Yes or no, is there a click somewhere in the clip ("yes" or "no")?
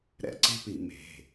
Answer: yes